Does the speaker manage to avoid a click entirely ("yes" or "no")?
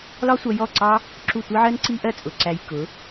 no